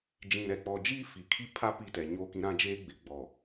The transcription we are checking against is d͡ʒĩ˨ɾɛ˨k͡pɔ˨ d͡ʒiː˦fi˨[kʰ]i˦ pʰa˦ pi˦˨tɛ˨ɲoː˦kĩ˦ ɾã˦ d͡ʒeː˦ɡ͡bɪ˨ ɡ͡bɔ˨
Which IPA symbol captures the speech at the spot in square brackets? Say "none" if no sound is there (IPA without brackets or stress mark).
kʰ